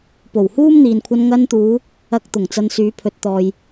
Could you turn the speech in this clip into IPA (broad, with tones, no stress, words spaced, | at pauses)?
po˨˩whuː˥mn̪iː˨nkʷʰɐ˧n ŋɐ˧nt̪uː˨˧ | ɐ˧k̚ t̪ʊ˨˩ŋt͡sɐ˧nsyː˨˥ pʰɵ˨t̚t̪ɔː˨j